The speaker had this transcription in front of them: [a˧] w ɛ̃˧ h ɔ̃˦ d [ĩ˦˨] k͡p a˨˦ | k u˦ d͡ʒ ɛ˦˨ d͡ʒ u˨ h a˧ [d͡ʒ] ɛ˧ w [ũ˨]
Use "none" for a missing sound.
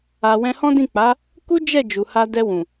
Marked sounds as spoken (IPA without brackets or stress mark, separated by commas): a˧, ĩ˦˨, d, ũ˨